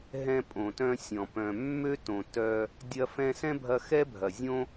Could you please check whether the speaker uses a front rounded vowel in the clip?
yes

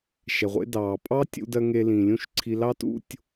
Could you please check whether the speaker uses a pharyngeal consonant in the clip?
no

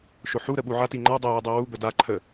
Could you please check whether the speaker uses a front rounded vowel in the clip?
no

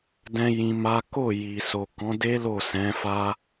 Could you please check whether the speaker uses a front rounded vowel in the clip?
no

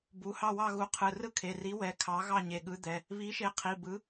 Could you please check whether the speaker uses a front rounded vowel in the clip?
no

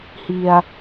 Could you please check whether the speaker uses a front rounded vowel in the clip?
no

